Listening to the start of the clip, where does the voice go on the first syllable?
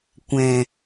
low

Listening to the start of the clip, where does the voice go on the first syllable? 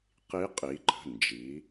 rising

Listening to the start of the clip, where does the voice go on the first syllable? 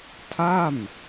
falling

